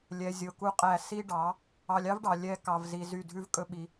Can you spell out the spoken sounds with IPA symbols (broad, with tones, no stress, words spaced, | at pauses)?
lʲɛ˨zʲo˨ ku˦qʼæ˦˨ si˦ɖɑ˨˦ | ɑ˧lʲ ɑ˦vɖɑ˨ lʲɛ˦ kɑ˧vzi˧zy˦˨ dʱʉ˦v kʼɵ˦ɓi˧